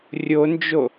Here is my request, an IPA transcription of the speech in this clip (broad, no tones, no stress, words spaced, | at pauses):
rʲond͡ʒo